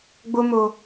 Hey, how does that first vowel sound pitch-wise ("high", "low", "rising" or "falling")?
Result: high